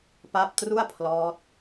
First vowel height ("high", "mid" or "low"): low